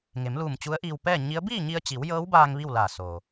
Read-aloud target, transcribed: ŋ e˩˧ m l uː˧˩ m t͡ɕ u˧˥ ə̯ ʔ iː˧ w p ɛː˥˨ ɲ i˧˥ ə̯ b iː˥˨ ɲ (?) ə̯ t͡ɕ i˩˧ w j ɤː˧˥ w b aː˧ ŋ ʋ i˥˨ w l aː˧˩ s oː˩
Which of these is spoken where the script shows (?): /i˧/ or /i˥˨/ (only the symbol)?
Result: i˧